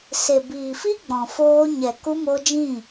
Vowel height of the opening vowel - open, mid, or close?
mid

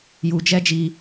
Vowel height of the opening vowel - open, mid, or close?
close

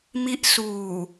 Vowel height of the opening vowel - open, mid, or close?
close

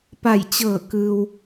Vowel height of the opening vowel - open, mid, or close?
open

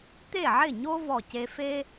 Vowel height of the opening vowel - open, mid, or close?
mid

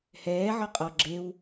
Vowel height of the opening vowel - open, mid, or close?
mid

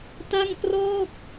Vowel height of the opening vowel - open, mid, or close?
open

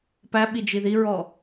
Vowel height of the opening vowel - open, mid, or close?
open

